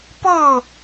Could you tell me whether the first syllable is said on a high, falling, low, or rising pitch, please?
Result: falling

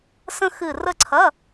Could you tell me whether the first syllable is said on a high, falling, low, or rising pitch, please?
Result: high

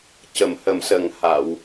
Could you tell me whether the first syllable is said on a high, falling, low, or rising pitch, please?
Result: low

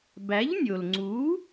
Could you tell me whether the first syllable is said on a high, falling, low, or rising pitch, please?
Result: rising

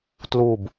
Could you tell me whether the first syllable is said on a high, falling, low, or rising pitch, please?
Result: falling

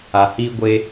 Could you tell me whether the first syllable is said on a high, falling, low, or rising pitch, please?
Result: low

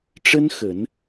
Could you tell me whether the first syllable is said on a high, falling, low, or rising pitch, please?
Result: high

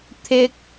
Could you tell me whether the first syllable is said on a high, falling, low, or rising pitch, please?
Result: high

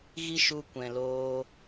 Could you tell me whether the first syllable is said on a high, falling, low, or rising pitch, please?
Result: high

